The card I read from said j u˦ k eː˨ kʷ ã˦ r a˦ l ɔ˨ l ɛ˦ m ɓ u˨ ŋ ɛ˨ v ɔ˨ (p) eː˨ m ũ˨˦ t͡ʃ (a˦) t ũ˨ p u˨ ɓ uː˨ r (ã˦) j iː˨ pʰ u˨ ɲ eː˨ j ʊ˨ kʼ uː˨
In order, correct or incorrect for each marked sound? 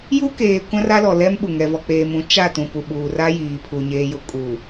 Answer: incorrect, incorrect, incorrect

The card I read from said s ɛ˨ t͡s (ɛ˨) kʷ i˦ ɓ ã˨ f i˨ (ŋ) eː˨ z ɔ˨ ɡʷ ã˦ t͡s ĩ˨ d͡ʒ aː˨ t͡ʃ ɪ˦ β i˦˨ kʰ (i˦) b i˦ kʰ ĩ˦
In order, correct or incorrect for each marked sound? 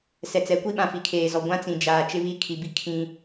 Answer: incorrect, incorrect, incorrect

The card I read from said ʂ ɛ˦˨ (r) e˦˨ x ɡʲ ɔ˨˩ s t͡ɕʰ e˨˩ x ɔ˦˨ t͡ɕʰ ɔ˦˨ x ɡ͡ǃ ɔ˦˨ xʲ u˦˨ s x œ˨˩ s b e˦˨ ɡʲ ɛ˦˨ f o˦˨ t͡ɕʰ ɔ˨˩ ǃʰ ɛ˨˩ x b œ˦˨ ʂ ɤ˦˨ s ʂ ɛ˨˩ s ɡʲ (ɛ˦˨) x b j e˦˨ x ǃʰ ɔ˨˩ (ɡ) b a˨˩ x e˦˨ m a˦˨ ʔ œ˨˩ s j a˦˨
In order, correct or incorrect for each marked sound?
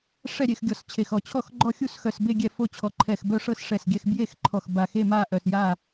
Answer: incorrect, correct, incorrect

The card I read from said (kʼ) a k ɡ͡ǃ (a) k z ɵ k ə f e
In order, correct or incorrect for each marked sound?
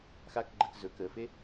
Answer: incorrect, incorrect

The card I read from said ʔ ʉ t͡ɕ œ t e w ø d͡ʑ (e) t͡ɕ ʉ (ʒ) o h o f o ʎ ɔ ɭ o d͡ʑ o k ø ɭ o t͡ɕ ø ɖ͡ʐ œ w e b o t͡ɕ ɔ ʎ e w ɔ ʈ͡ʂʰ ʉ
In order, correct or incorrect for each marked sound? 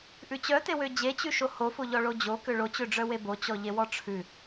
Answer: correct, incorrect

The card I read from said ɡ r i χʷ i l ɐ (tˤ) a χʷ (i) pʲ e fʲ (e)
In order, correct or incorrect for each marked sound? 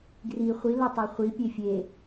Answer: correct, correct, correct

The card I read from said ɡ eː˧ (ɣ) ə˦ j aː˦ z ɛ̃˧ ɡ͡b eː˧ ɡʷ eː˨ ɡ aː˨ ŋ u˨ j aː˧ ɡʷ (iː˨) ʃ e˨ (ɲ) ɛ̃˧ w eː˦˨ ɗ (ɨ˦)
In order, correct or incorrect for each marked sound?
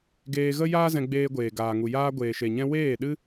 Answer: correct, incorrect, correct, correct

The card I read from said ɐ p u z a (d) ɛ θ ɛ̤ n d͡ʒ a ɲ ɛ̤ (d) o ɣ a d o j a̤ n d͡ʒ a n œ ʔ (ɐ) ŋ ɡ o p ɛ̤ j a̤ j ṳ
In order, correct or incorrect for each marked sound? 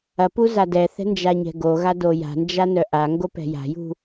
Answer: correct, incorrect, incorrect

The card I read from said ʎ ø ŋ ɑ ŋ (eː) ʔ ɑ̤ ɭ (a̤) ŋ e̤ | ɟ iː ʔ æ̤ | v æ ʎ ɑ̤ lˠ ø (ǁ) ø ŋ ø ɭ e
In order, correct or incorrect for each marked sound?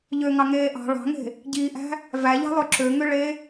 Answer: correct, incorrect, correct

